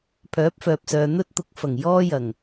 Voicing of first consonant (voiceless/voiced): voiceless